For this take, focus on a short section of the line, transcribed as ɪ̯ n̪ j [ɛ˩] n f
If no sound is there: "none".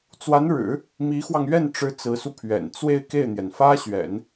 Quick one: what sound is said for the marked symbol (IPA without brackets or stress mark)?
ɛ˩